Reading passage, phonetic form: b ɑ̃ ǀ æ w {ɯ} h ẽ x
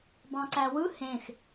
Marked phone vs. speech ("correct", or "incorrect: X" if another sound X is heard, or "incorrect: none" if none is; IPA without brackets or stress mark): correct